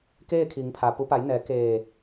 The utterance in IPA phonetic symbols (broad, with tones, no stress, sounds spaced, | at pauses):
k eː˥˨ kʰ i˩˧ ŋ pʰ a˩ p u˩˧ p a˩˧ j n ɛː˩˧ k eː˧˩